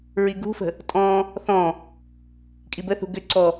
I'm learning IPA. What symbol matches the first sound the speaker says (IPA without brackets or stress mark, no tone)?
ɹ